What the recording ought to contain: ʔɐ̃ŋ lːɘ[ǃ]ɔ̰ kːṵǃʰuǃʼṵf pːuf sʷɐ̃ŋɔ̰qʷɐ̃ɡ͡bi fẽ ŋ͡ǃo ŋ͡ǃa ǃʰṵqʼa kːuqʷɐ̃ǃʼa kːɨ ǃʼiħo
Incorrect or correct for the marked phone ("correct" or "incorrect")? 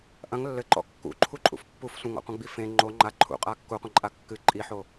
correct